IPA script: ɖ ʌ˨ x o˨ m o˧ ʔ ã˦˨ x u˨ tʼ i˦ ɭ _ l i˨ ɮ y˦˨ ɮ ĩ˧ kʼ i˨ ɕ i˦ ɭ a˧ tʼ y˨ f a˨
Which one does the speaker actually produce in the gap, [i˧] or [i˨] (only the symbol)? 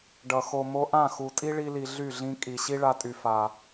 i˧